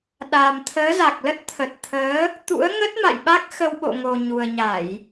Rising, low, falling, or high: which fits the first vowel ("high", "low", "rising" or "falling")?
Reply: low